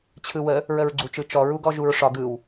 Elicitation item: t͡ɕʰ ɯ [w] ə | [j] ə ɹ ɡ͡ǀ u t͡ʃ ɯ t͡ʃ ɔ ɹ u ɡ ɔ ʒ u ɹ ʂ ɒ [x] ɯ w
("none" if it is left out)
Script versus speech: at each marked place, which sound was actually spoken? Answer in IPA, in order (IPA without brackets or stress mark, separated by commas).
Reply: w, ɹ, ɡ